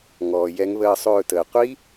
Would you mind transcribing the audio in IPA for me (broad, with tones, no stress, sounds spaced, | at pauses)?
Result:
ŋ ɔː˩ j ɛ˨˦ ŋ β əː˦˨ sˤ ɵː˦˨ t əː˩ qʷ i˦˥